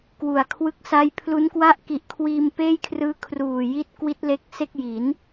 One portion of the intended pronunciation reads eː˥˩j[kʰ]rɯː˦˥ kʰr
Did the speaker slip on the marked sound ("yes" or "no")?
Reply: no